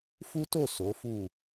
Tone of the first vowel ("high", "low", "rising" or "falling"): high